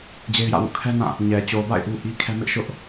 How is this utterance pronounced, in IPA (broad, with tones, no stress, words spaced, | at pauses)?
d͡ʑe˦ɪ̯jä̰˦˨wṵ˦˨ kʰɛ˦nã˦˨ | ɲɛ˨ t͡ɕo˨ba̰˦˨ɪ̯ ʔu˦ʔi˦kʰɛ˦ mɪ˦ʔʃʊ˦ʔ